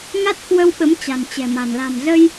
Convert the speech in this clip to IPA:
ŋ a˦˥ t̚ k w ə˧ w ɓ ə˨˦ m t͡ɕ a̤˨˩ n t͡ɕ ɛ̤˨˩ m a̤˨˩ n l a̤˨˩ m z ə˧ j

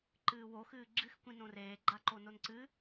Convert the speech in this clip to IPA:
ǃ ɨː w o x ɨː ɡ͡ǁ ɨ x kʷ ĩ n õ r eː ɡ͡ǃ a ǃ o n o n ǀ ɨ

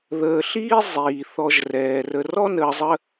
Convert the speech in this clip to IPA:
ð əː˨ ɬ iː˥ zˤ iː˩ θ ɔ˨ ʒ r ɛː˩ r ə˨ r ɔ˥ n əː˨ zˤ ə˦

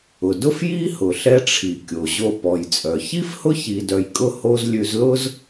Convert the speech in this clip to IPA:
ʊ˩ d ʊ˥ f j i˥ h ʊ˩ ɬ ɛ˧ ʈ͡ʂʰ i˩ kʲ o˩ ʑ o˧ p ɔ˩ j t͡sʼ œ˩ ç i˥ f h ʊ˥ ç i˧ d œ˧ j kʼ ʊ˥ h o˥ z lʲ ʉ˧ z l ʊ˥ z

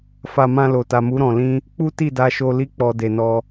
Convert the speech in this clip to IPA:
f a˧ m ã˧ l o˨ t a˨ m u˨˦ ɾ ɔ̃˧ l ĩ˦ | k͡p u˦ t i˦˨ d a˧ ʃ o˧ l i˦ k͡p ɔ˧ d e˨ n ɔ˧

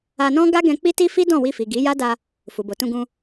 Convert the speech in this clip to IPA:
a˧ n ɔ̃˦ ɡ a˦ ɡ ɛ̃˧ k͡p i˦ t i˦ f i˦ d ɔ̃˦˨ w i˧ f i˨ ɡ i˨˦ j a˦ d a˧ | f u˨ b o˨ t ũ˧ ɡ ũ˧

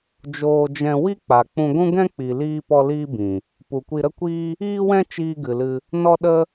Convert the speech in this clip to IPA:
d͡ʒ oː˧ d͡ʒ ɛ̃˧ w i˦ k͡p a˨ k͡p ũ˧ ɡʷ ũ˦ ɡ ɛ̃˦ k͡p i˨ l iː˧ p ɔ˧ l iː˦ b ĩ˨ | p u˨ kʷ i˧ ɾ ə˦ kʷ iː˦ | iː˦ w ɛ̃˦ t͡ʃ iː˧ ɡ ɨ˨ l ɨ˧ | n ɔ˧ ɗ ə˧

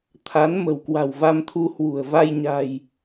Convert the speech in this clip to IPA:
t̪ʰ a˨˦ n m ə̤˨˩ w k w a̤˨˩ w v a˧ m t̪ʰ u˧ h w ṳ˨˩ ə̯ v a˧ j ɲ a̤˨˩ j

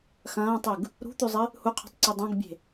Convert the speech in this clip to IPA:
x ɐ̃ː tˤ ʉ ɡ | ɾ ṳ t̪ ʉ zˤ ɨ | h u qʰ ṳ tˤ ǀ i dˤ õ ɡ bʲ e̤

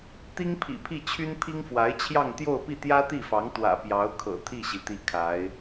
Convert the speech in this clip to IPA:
t̪ i˥ ŋ pʰ ḭ˨˩ pʰ i˥˩ t͡ɕʰ y˥ n pʰ i˥ ŋ f w a˧˥ ɪ̯ t͡ɕʰ j ɑ˥˧ ŋ t̪ j o˥˧ ʊ̯ p i˥˩ t̪ j ä˥ t̪ i˥˩ f ɑ˧˥ ŋ t̪ w ä̰˨˩ p j ɑ˧˥ ʊ̯ kʰ ɤ̰˨˩ t̪ʰ i˥˩ ɕ i˩ t̪ i˥˩ kʰ a˧˥ ɪ̯

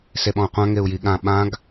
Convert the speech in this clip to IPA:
s e ɓ ɔ̃ u̯ qʷ ã ŋ e u̯ j i ɠ ã ɓ ã ɡ

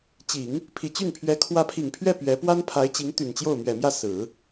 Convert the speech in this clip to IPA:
t͡ɕ i˨˩˦ ŋ | pʰ i˨˩ t͡ɕ y˥˩ n pʰ ɥ ɛ˧˥ kʰ w ä˧˥ pʰ i˨˩ ŋ pʰ ɥ ɛ˥˩ p ɥ ɛ˧˥ p w a˥ n pʰ a˧˥ ɪ̯ t͡ɕ i˧˥ ŋ t̪ y˨˩ n t͡ɕ j o˥˩ ʊ̯ m ɥ ɛ˨˩ m j ä˥˩ s ɹ̩˨˩˦

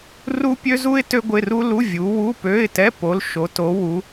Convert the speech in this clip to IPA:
r u˥ pʲ ø˥ z u˥ ɪ̯ t ø˥ ɡʷ ɪ˧˥˧ r u˥ l u˧˥˧ vʲ u˨˦ w u˧˥˧ p ø˧˥˧ ɪ̯ t ɛ˧˥˧ p o˨˦ l ʃ o˨˦ t o˨˦ w u˨˦

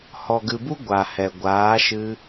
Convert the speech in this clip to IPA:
h ɔ˨ ɡ ɨ˨ b u˦ ɡʷ a˨ h ɛ˨ ɡʷ aː˨˦ ʃ ɨ˧

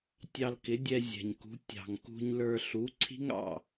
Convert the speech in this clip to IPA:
tʲ ɑ˧ l k ɪ˩˥ dʲ ɛ˧ zʲ ɛ̤˩ ɲ k ṳ˩˥ tʲ ɑ̤˩ ŋ k ṳ˧ ɲ l ə˞˧ ɬ u˩˥ ǀʰ i̤˥ ŋ ɑ̰˥˩

